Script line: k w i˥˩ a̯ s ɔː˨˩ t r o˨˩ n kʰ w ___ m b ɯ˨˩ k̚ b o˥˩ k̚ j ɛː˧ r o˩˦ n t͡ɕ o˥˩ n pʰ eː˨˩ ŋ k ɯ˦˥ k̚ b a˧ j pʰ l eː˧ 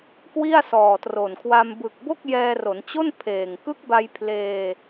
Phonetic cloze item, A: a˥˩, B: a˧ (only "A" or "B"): B